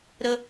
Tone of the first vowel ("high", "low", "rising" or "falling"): high